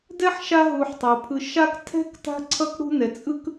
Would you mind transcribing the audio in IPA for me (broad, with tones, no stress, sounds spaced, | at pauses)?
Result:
d ɛ˥ ħ ʃ a˦ ɦ u˨ ħ tˤ o˩ pʰ ɯ˨ ʃ a˦ k tʰ ɛ̤˥ k t a̤˥ ǀʰ ʌ˥ k ɽ ṳ˦ n ɛ˨ t͡sʼ ɯ˥ k